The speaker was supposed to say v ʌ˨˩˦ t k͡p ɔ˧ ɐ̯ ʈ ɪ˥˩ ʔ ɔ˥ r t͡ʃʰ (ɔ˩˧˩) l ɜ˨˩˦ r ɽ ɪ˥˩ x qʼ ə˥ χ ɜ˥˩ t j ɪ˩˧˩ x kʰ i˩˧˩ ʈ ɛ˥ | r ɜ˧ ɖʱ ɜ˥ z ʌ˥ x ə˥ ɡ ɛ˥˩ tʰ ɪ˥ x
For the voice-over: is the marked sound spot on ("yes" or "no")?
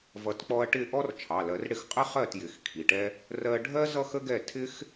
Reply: no